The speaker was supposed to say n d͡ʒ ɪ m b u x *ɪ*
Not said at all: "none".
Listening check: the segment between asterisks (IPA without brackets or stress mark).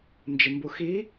i